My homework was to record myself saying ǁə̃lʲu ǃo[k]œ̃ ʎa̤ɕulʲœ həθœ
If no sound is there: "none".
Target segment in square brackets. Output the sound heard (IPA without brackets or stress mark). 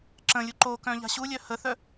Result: k